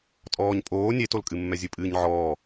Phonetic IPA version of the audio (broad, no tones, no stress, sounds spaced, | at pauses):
tʼ ɔː ɲ pʼ oː nʲ e t o l kʼ ɨ mː ɛ zʲ ɨ pʼ ɨː ɲ ʕ ɔː